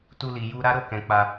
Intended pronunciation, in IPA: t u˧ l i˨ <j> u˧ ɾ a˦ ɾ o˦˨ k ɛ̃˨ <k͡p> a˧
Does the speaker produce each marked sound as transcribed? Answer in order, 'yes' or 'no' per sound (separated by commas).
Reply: yes, yes